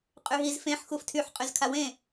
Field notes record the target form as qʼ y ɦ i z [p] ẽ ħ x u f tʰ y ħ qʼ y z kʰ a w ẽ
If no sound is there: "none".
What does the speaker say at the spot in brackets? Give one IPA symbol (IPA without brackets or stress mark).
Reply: f